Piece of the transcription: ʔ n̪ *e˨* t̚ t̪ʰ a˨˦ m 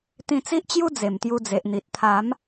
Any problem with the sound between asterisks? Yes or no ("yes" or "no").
yes